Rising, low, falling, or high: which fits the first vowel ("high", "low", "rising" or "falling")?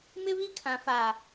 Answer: high